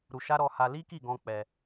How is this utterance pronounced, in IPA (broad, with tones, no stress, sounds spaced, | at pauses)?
ɾ u˧ ʃ a˦ ɾ ɔ˧ h a˧ l i˦ k i˦˨ ɡ ɔ̃˧ k͡p ɛ˧